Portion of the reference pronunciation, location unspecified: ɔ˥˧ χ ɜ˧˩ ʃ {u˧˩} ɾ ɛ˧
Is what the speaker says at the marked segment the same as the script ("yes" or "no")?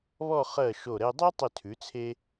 no